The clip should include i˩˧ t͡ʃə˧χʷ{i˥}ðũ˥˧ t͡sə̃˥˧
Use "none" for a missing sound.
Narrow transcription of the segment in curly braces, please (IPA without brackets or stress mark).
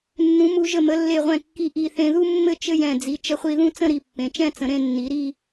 i˧